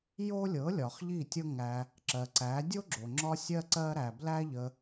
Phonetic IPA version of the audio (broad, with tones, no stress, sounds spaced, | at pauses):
j o˦ lʲ ɤ˨˦ lʲ ɒ˨ χ ʎ i˦˨ tʲ ɤ˦ ŋ æ˧ | ǁ ɜ˨ ǀ æ˨˦ dʲ o˦ ɡ͡ǁ o˨ ŋ͡ǁ ɒ˦ sʲ ɜ˦ ǀ ɜ˦ ɾ æ˧ b l æ˦ ʎ ə˧